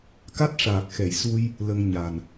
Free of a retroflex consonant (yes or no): no